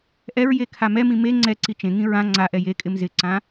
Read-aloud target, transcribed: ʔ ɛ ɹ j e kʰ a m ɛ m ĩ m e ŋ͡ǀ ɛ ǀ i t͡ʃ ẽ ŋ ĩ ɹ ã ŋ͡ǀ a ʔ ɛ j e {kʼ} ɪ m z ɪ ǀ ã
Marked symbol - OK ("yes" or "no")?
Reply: yes